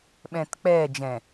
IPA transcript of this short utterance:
ɓ ɛ̃ː t k͡p ɛː d͡ʒ ɛ̃

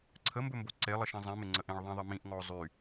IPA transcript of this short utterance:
ǀʰ ə m b ɵ m b o ǀ e lˠ ə ʃ ɛ̃ zˤ ĩ m ɪ ŋ͡ǀ ə ʔ ẽ ɭ ðˤ ɛ̃ ðˤ ɪ m ĩ ʔ ŋ ɔ o̯ zˤ y

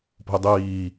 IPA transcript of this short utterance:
p o̤ i̯ dˤ iː

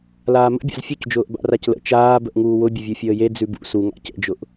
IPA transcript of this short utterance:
l aː m ə̰ bʲ a̰ z fʲ ʉ c d͡ʒ ʊː ʔ b a̰ r a c l ə̰ t͡ʃ aː b ə ʔ ŋ uː w ʊ bʲ ʊ vʲ u fʲ əː j e d͡z ʉ b ṵ s u ŋ a̰ c ə̰ d͡ʒ ʊ ʔ

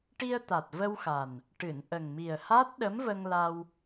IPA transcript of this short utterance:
ʈ i˧ ə̯ t̪ a˨˩ t̚ v ə˧ w x a˨˩ n | ʈ ɨ˨˩˨ n ʔ ə˨˩ ŋ m i˨˩ ə̯ h a˦˥ t̚ ɗ ə˧˥ m v ə˧ ŋ l a˧ w

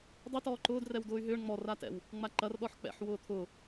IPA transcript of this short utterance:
dˤ ɪ t ɔː ǃ ʊː d r ɛ w d ʊː y̯ ɦ ʏː ɳ ŋ͡m ɔ r a t ɛ̰ w | ŋ͡m a ǃ ɐ r ɗ ɔ ħ k͡p ɛ̰ ħ w ʊː t̪ʰ ʊ

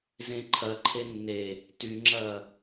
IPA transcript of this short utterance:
z ẽ ǃʰ ɐ ǃʰ e nː e | t y ŋ͡ǁ ɐː

